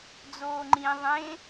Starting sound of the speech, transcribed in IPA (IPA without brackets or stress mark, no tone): d͡z